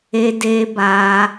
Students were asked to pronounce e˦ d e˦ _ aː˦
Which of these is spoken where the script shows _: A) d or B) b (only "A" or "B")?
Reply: B